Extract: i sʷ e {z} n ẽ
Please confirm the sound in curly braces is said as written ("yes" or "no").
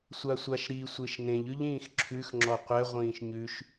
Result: no